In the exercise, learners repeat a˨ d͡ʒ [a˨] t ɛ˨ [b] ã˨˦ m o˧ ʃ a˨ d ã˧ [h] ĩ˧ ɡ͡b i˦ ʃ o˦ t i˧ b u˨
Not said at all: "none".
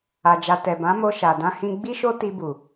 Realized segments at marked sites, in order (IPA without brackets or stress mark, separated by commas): a˨, b, h